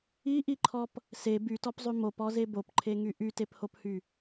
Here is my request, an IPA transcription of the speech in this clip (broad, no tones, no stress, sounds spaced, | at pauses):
i ʔ i ǃʰ ɔ p | s e b y t ɔ p zˤ y m o p ɔ z e b o p ǃʰ e ŋ y ʔ y t e p h o p h y